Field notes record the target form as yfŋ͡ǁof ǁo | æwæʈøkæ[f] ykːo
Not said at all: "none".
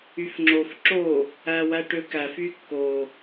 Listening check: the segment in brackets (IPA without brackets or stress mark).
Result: f